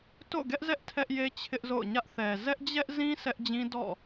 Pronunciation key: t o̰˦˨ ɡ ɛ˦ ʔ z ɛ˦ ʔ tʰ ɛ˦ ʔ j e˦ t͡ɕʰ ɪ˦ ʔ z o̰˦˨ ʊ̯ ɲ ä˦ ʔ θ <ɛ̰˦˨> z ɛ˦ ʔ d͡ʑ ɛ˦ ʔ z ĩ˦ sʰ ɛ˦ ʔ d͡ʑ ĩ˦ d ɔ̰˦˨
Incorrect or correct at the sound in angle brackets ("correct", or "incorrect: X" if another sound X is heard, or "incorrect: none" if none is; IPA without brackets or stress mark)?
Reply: incorrect: ɛ˨